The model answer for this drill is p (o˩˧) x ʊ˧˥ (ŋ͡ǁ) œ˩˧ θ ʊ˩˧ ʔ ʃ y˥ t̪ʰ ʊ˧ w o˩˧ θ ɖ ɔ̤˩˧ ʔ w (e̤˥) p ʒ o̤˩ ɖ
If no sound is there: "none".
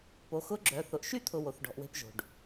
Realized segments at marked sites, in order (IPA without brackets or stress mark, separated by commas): o˩˧, ɡ͡ǁ, e̤˧